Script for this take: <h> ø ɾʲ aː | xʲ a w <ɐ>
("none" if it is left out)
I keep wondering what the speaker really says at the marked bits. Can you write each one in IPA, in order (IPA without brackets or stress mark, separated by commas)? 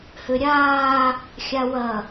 h, ɐ